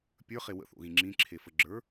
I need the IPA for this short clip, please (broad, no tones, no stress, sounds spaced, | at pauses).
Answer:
pʲ ə˞ χ e w ə̰ θ o̰ ɣ ĩ ŋ͡ǁ ĩ ǁʰ e f ə ɡ͡ǁ ə˞